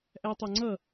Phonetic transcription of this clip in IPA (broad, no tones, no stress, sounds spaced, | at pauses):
ʔ æ tˤ ɑ ŋ͡ǀ ʌ